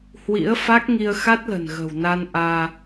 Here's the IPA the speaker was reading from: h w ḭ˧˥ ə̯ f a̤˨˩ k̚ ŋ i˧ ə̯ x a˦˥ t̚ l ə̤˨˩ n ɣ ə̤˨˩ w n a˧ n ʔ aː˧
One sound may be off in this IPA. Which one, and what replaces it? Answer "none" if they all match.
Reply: a̤˨˩ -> a˦˥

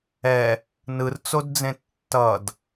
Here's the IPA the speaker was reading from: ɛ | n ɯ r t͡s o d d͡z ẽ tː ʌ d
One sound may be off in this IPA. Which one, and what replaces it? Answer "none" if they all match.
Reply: none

